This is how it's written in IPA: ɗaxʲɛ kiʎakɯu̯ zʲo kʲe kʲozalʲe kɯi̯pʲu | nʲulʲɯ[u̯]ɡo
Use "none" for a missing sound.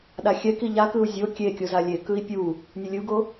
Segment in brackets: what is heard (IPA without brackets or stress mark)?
u̯